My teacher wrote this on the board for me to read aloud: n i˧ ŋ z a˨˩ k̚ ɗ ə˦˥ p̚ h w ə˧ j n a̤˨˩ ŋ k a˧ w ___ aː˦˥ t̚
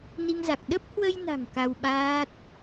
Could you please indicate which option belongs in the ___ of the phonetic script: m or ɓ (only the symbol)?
ɓ